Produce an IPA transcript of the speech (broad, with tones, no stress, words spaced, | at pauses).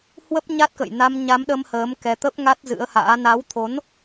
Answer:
hwə˦˥p̚ɲa˦˥t̚kə̰˧˨j na˧mɲa˨˦mɗə˧m həː˨˦mkɛ˧t̪ə˦˥p̚ ŋa˦˥t̚zɨ̰˧˥ə̯ha̰ː˧˥ na˨˦wt̪ʰo˨˦n